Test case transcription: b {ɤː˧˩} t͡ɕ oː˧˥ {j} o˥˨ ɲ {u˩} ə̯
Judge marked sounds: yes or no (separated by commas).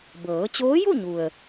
no, yes, yes